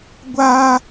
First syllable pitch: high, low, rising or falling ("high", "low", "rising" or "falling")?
high